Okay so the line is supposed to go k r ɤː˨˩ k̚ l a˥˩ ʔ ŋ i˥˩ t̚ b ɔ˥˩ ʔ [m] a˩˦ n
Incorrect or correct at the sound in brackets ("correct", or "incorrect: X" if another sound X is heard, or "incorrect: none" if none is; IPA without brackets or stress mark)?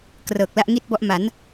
correct